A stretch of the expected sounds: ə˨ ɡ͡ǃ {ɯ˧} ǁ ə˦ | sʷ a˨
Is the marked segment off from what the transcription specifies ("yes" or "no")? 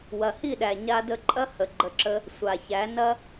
yes